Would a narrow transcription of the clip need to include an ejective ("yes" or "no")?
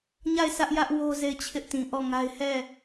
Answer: no